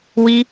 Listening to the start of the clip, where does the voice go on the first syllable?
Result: high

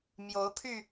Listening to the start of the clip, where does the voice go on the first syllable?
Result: rising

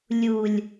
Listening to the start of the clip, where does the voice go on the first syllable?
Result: low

